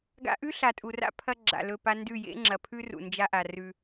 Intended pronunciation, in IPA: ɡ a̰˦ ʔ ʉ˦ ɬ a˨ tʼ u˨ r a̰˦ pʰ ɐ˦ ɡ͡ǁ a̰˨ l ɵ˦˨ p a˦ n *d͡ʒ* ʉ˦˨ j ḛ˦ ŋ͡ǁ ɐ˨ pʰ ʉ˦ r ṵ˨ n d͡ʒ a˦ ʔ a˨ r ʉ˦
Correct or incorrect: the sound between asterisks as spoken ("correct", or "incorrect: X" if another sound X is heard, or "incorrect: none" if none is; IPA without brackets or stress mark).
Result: incorrect: d